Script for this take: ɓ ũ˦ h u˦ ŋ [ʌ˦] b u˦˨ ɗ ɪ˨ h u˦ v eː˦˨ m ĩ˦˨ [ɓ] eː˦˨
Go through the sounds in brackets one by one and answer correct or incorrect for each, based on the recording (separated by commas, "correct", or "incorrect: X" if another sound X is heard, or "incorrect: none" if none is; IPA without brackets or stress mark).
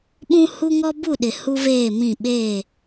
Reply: incorrect: ɔ˦, correct